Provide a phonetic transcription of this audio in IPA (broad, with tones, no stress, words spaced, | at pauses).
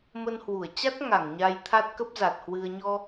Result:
mə˧nhwu˧˩ə̯ t͡ɕa˦˥t̚ŋa˧˩ŋ ɲa˧jt̪ʰa˦˥t̚ kə˦˥p̚za˨˩t̚hwɨ˧ə̯ ɲɔ˧